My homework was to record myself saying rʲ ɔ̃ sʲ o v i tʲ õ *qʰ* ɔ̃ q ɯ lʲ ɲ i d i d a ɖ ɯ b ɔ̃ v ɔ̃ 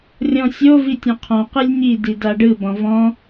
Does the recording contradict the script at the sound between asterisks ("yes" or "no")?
no